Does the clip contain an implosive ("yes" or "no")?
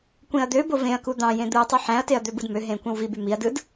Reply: no